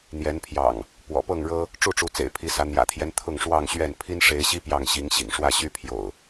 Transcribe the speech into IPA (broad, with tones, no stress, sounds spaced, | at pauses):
n̪ j ɛ˨˦ n pʰ j ɑ̰˨˩ ŋ | p w ɔ̰˨˩ p ɤ˥˨ ŋ ɻ ɤ˦ | ʈ͡ʂ u˥˨ ʈ͡ʂ u˨˦ t͡s ḛ˨˩ ɪ̯ pʰ i˨˦ s ä˨˦ n̪ j ä̰˨˩ t̪ʰ j ɛ˦ n t̪ʰ ʊ˥˨ ŋ ʂ w ɑ˥˨ ŋ ɕ ɥ ɛ˥˨ n pʰ i˦ n ʂ e˨˦ ɪ̯ ɕ i˦ p j ɑ˥˨ ŋ ɕ i˨˦ ŋ ɕ ḭ˨˩ ŋ ʂ w ä˥˨ ɕ y˦ pʰ j o̰˨˩ ʊ̯